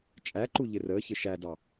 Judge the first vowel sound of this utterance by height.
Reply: low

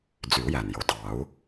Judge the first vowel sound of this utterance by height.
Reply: high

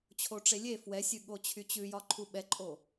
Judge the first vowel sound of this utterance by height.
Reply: mid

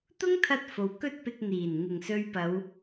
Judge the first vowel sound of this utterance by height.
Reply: high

